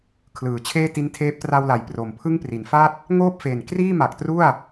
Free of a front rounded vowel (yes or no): yes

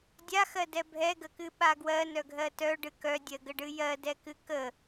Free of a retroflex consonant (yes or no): no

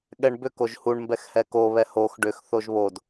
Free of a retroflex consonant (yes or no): no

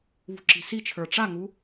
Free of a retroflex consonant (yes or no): no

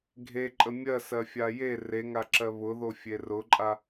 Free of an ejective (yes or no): no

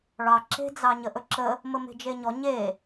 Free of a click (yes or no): no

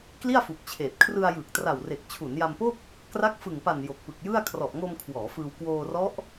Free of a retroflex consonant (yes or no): yes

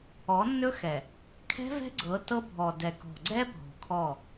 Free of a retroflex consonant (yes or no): yes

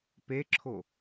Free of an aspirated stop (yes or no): no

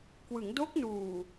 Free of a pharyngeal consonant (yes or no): yes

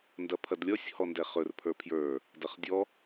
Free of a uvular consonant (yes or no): no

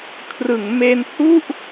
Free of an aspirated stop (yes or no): no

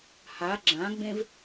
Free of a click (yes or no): no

